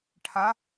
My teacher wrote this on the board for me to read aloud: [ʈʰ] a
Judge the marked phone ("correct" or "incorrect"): correct